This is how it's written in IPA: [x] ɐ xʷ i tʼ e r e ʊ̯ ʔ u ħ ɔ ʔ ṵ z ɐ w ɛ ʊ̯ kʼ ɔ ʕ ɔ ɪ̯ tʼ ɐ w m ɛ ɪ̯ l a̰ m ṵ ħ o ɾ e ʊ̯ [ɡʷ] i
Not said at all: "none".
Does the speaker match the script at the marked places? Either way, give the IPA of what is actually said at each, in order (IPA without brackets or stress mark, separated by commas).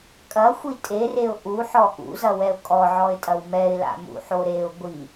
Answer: kʼ, ɡʷ